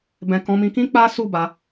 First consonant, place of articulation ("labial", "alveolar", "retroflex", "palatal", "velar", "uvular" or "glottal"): labial